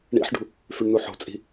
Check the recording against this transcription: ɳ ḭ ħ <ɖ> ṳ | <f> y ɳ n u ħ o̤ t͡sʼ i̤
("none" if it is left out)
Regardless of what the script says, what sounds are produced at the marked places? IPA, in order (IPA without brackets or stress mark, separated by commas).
ɖ, f